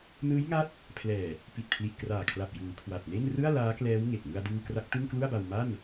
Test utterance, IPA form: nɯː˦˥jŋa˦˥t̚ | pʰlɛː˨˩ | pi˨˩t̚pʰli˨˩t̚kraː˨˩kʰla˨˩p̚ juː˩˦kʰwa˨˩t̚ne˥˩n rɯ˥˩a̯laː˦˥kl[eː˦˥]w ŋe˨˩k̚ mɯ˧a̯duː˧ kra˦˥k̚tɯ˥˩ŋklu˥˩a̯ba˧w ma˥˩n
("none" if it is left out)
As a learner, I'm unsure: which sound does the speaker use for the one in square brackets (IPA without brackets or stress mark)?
ɛː˦˥